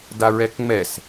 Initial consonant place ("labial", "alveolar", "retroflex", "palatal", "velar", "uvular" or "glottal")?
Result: alveolar